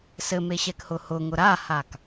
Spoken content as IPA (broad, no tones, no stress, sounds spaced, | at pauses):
s ɘ m e ɕ ɛ k h ʊ h ʊ ŋ ʊ ɾ a h a k